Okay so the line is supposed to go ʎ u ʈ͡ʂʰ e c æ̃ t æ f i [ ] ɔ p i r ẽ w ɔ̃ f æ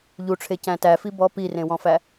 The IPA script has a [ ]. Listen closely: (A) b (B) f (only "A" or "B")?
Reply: A